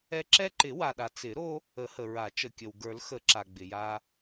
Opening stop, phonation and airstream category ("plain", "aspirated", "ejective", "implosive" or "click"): click